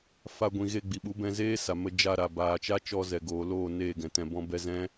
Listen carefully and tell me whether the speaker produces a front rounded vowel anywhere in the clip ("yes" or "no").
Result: no